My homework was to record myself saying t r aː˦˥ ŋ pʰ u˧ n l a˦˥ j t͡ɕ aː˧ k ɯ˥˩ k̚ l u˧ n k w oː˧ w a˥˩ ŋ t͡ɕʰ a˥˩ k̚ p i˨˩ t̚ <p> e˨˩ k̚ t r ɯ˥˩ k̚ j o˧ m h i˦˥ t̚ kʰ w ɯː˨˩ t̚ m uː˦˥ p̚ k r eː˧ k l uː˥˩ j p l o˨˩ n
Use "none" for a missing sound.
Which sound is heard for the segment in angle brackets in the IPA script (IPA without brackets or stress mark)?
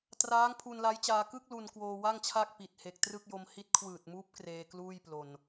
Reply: h